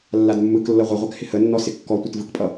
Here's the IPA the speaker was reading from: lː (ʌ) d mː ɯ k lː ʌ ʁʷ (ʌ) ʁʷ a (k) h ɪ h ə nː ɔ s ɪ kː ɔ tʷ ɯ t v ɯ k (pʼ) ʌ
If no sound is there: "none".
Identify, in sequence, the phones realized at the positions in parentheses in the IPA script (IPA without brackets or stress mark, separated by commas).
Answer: a, ʌ, k, pʼ